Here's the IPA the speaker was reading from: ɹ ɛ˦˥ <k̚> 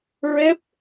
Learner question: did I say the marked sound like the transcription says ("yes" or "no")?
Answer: no